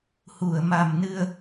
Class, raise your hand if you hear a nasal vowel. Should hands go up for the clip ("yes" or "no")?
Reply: no